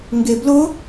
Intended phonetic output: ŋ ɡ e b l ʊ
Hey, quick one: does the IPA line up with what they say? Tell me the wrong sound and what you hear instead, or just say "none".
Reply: none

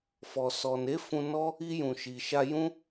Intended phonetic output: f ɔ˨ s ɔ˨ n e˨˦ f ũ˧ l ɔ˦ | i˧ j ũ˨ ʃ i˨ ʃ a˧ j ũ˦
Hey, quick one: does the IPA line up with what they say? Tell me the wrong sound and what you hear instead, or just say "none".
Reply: l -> n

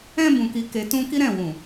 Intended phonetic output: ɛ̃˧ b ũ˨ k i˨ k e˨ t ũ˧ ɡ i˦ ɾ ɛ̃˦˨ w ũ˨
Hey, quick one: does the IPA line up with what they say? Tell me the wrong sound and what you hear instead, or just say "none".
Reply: ɡ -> k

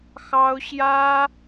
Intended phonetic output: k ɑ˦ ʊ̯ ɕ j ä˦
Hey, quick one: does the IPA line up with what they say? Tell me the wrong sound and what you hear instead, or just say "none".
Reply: k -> x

